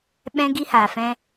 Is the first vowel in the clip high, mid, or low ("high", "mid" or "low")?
mid